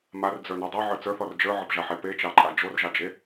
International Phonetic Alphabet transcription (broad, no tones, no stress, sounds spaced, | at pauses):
m a r d͡z ə˞ n o dˤ ə˞ ʕ ə˞ t͡s ə˞ θ ɔ r d͡ʒ ə˞ ʕ ʌ p ʒ a ħ e p e t͡ʃ ɑ ǃʼ a d͡ʒ o r ʒ ɑ d͡ʒ e